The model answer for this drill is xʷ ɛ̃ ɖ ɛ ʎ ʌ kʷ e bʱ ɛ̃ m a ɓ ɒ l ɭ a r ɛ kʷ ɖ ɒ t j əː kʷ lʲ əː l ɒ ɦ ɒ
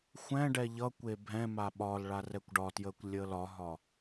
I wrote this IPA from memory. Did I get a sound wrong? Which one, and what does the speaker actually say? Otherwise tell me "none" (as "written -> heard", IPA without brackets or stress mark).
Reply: none